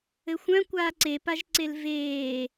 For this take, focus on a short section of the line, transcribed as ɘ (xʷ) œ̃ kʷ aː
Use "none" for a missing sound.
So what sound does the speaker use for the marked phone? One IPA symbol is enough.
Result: xʷ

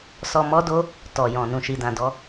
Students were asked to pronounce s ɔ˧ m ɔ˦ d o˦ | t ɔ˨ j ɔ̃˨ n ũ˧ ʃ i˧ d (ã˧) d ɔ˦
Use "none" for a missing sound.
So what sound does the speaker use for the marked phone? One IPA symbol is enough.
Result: ã˧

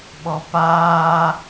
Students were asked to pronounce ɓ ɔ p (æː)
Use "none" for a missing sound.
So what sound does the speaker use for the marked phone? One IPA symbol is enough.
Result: aː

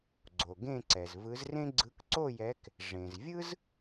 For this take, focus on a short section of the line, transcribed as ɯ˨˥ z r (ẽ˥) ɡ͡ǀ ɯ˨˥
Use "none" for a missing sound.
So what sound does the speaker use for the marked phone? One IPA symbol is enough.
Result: ẽ˥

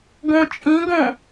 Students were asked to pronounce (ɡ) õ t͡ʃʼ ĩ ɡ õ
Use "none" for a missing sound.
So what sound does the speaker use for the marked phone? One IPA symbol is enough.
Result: ɡ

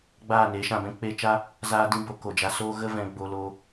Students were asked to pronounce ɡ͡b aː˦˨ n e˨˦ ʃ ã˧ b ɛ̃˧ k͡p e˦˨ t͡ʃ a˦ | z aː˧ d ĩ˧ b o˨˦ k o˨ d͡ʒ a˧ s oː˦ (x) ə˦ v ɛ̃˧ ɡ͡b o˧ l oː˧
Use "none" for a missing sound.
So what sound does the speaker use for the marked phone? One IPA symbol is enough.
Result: ɣ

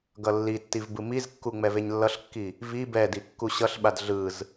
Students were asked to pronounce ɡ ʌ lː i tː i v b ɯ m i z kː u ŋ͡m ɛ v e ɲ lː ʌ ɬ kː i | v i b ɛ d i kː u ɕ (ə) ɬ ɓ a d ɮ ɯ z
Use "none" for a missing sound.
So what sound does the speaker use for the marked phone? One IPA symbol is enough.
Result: ʌ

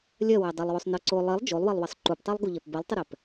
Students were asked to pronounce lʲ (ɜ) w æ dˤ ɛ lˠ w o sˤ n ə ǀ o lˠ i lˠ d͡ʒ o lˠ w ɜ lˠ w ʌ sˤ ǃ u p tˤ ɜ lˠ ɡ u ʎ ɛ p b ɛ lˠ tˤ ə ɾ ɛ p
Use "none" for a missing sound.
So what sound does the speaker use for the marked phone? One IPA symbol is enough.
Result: ɜ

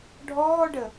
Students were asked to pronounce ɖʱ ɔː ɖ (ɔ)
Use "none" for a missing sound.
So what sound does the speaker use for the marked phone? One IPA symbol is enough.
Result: ə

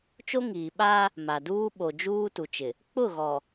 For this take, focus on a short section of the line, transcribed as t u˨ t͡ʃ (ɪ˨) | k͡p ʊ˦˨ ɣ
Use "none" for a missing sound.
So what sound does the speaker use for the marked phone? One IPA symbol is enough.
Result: ɪ˨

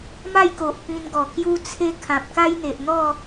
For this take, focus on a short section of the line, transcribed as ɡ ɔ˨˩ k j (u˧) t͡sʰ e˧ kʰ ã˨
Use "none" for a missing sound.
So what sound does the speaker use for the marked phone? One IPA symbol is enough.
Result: u˧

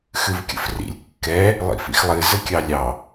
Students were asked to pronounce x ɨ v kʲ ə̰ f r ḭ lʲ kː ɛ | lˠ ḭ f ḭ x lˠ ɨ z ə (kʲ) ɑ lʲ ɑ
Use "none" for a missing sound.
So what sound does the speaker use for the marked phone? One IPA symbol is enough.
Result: kʲ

